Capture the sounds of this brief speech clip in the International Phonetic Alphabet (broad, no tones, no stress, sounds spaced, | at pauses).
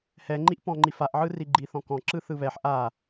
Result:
h ɛ ŋ͡ǃ i ʔ p ɔ̃ ŋ͡ǃ i f a ʔ ʕ ɯ r i ɡ͡ǃ i θ ɔ̃ k ɔ̃ ǁ ɯ θ ɯ β ɛ ħ ʔ a